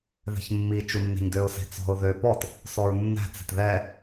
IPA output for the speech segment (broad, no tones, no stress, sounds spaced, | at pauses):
ð ɛ̤ ç mː i t͡ʃ u nː e̤ ɲ d ø ʊ̯ s e̤ t͡s ɔ̤ ʊ̯ ð ø p ɔ t | s ɔ ɹ nː æ̤ t͡s e̤ t ð ɛ